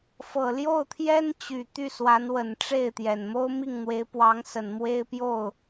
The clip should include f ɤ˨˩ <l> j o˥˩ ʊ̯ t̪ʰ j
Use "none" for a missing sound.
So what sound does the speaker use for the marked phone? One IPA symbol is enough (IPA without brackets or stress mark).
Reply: l